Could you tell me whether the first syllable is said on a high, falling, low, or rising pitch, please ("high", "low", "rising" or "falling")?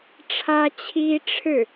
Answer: high